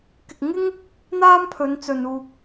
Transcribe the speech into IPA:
k ɪ˨ k̚ ŋ ɪ˥ ŋ | n̪ aː˥ m pʰ ɵ˨˧ n t͡s ɵ˨ n uː˨ k̚

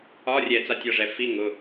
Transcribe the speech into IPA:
ɒ˧˥˧ rʲ ɛ˧˩˧ t͡s a˧˥˧ tʲ ɒ˩˧˩ ʐ ɛ˧˩˧ f i˧˥˧ ŋ ʊ˩˧˩

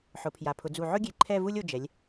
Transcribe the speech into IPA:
ħ ʊ˩˧ pʰ j a˩˧ pʰ ʊ˩˧ d͡z u˧˩ ʕ ʊ˥ ɡʲ e˧˩ ǃʰ ɛ˥˧ v u˥ lʲ o˧ d͡ʒ ɛ˩˧ lʲ

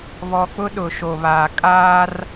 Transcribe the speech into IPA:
β ɔ˨ k͡p ʊ˦ ɗ ʊ˨ ʃ o˨ β aː˨ kʼ aː˦ r

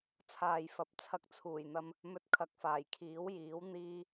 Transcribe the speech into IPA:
t͡sʰ aː˨ j f ɐ˨ p̚ t͡sʰ ɐ˧ k̚ t͡sʰ uː˨˩ j n̪ ɐ˧ m | m ɵ˧ t̚ kʰ ɐ˨˥ k̚ f aː˨˩ j kʰ iː˨˥ w j iː˨˥ w n̪ iː˧

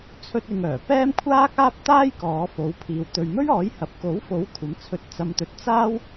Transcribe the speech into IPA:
t͡sʰ ɵ˥ t̚ ɪ˧ ŋ œː˨˩ p ɛː˥ m kʷʰ aː˥ k̚ aː˥ p̚ t̪ aː˥ j k ɔː˨˧ f o˨˧ w pʰ iː˨ w t̪ ɵ˨ ɥ m ɵ˥ ɥ ɔː˨˥ j h ɐ˨ p̚ k o˨˥ w f o˨˥ w kʷʰ ɐ˨˧ m t͡sʰ ɵ˧ t̚ t͡s ɐ˨ m t̪ ɵ˨ t̚ t͡s aː˥ w

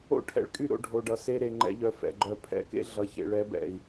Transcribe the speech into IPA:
o̰˦ ʈʰ ɛ̰˧ ɭ kʼ y˦˨ ɾ o̰˧ ɖʱ o˨ ɖ ʌ˨ s e˧ ɾ e˨ ŋ͡ǃ ɛ̰˧ ʎ œ˨ f ɛ̰˨ ɡ͡ǃ œ˧ pʰ ɛ̰˧ k ḛ˦ ɮ ʌ˨ ç ḛ˨ ɭ ɛ˨˦ b ɛ̰˨ i̯

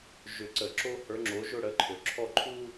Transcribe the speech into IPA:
ʒ ʏ˧˩ ǀ ə˧˩˧ ǁ o˥ h ə˞˨˦ ŋ͡ǁ o˨˦ ʒ ʊ˥˧ ɽ ə˨˦ ǃʰ ø˩ ǁʰ ɔ˥˧ ǃʰ u˥

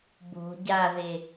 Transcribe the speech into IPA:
b o̤ ɟ a ð e

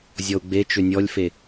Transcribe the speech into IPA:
zʲ ɔ u̯ ɡ͡b e t͡ʃ ʏ nʲ ɔ lʲ f e

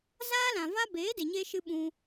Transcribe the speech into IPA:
z aː˦ l ã˨ v a˦ b eː˨˦ d e˨ ɲ eː˧ ʃ ɨ˦ ɓ ũ˦

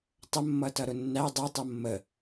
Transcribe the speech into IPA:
tˤ ə mː ʌ t ʌ ɾ ʊ nː æ dˤ ʌ tˤ ʌ mː ə

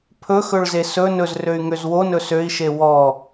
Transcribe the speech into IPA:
pʰ ɵ x ɵ ɭ z e s ɵ n ɵ z r ø y̯ ŋ ø z w o n ɵ s ø i̯ ʃ e w ɔ

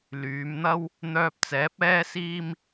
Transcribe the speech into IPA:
l yː˨˧ m n̪ ɐ˥ w | n̪ œː˧ p̚ t͡s ɛː˨˥ p̚ ɛː˥ s iː˥ m

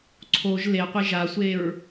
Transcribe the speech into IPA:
ǀʰ o ʒ l e qʷ e ʒ a sʷ e ɹ

